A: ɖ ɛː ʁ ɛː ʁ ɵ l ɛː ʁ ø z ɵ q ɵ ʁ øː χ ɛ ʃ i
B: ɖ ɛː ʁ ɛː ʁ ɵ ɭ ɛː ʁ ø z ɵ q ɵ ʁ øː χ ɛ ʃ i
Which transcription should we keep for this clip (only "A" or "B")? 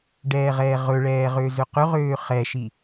B